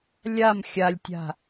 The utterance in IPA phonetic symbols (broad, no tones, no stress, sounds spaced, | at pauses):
lʲ a m xʲ a lʲ tʲ a̤